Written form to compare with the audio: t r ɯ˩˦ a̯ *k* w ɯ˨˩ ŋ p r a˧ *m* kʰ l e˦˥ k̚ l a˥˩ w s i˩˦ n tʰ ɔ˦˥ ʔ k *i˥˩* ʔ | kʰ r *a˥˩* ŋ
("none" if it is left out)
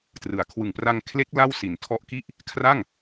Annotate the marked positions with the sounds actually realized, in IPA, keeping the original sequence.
kʰ, ŋ, i˥˩, a˥˩

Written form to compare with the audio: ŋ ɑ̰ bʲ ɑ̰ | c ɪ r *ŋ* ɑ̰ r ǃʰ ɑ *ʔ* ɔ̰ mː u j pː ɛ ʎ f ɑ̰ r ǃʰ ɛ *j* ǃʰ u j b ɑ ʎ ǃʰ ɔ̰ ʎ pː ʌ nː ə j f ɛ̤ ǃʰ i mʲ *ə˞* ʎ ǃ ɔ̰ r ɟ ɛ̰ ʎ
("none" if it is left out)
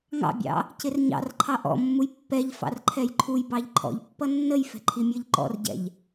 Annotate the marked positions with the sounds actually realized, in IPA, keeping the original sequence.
ɲ, ʔ, j, ə˞

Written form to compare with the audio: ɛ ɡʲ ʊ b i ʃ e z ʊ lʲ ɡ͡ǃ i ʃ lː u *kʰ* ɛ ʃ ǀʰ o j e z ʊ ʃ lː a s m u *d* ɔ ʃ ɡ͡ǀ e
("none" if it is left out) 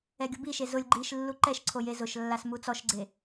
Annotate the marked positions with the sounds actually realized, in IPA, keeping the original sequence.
ǃ, t͡s

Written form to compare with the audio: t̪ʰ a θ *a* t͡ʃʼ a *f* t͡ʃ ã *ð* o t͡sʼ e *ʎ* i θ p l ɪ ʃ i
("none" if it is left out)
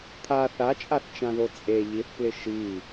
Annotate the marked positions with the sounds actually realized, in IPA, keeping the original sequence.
a, θ, ð, ʎ

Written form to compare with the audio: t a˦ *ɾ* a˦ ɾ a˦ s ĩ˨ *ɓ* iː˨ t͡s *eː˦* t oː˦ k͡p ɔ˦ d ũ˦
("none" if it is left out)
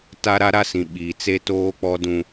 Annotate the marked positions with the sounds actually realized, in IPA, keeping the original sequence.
ɾ, ɓ, e˦

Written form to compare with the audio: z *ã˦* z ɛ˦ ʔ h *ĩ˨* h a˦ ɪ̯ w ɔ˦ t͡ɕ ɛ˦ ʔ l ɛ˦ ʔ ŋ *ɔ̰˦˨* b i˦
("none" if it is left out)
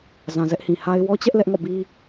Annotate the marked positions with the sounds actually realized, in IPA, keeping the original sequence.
ã˨, ĩ˨, ɔ̰˦˨

